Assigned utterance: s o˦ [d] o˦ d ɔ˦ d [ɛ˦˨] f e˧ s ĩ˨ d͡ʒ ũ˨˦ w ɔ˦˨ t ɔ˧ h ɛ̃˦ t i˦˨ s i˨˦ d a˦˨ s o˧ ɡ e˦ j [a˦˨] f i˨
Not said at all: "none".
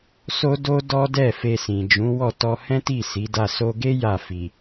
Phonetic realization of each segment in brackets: d, ɛ˦˨, a˦˨

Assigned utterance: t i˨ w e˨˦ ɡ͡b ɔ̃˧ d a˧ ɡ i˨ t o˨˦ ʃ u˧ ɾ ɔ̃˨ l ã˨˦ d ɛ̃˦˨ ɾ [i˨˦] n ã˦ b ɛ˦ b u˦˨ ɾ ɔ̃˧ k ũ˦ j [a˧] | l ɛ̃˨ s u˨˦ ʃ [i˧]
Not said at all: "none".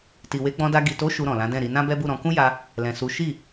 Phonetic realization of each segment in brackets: i˨˦, a˧, i˦˨

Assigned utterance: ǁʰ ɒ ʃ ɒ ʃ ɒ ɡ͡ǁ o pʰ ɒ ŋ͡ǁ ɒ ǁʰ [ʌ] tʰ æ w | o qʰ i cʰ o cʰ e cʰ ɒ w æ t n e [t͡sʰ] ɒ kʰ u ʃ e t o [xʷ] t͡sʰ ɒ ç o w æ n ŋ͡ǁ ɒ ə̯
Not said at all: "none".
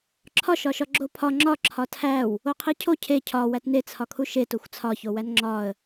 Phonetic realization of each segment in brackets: ɒ, t͡sʰ, xʷ

